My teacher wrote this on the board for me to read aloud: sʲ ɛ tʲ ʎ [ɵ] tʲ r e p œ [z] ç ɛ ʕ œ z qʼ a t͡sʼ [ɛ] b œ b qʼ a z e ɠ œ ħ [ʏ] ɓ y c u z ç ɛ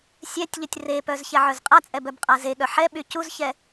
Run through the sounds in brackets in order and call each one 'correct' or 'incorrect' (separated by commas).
incorrect, correct, correct, incorrect